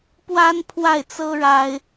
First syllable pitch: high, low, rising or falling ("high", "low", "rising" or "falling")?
high